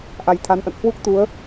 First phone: ʔ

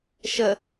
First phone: ʃ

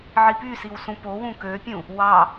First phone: ʕ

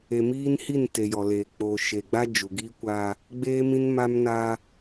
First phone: e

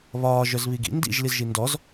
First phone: β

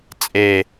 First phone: t͡sʼ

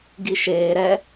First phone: ɡ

